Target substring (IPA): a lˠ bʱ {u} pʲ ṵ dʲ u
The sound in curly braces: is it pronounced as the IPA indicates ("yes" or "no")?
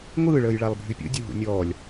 no